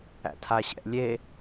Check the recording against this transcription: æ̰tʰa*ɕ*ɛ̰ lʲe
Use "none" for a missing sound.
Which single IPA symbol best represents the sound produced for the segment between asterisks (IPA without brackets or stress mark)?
ɕ